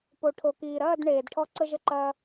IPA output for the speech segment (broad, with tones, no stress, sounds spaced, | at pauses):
p o˨ ʈʰ o˨ k iː˨ ɾ ɐː˦˨ d ɳ eː˨ d ʈʰ ɔ˧ ǀ ə˧ ʒ ə˧ ǃ ɐː˧